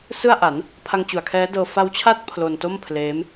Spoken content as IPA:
sɯ˥˩a̯ʔa˩˦n | pʰa˧ŋt͡ɕu˨˩a̯kʰɛː˦˥dɤː˧ fa˦˥wt͡ɕʰa˥˩t̚ pʰlo˧nto˥˩mpʰleː˦˥m

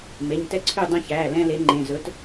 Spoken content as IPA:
me˩˧˩ɲtɛ˥˨ǀʰy˥˨ dˤɛ̃˦çæː˩˧˩ lɛ̃˦le˨˥ŋ͡ǃẽ˩˧˩ zɵ˨˥t

